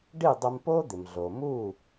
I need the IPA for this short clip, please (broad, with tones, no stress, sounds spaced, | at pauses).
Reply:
ɖ i˥˩ dˤ ə˧ m p o˥ d̪ ɪ˩ m ɮ o˩ m u˥˩